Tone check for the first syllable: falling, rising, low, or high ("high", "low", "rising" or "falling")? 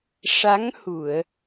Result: rising